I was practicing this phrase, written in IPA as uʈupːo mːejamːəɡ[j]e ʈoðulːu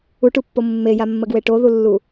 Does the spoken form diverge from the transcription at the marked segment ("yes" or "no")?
yes